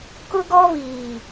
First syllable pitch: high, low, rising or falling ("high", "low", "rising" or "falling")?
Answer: high